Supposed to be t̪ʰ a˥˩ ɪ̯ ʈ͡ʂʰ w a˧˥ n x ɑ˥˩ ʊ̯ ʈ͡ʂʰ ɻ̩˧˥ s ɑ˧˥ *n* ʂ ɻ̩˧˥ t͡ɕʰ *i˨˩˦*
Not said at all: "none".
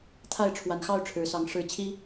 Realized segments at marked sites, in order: ŋ, i˥

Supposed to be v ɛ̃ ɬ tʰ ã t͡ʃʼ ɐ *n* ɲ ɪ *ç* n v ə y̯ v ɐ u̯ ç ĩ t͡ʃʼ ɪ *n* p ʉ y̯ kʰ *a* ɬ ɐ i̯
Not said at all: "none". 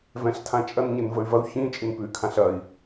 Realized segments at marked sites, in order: n, none, n, ã

